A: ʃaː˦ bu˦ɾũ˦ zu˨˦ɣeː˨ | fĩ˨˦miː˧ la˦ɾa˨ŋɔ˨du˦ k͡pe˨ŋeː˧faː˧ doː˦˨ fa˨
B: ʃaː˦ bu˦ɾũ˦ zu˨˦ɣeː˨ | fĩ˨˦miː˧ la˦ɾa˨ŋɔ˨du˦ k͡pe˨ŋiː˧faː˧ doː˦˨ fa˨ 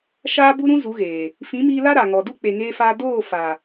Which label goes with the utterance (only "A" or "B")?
A